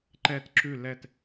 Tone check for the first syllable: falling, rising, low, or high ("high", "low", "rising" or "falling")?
falling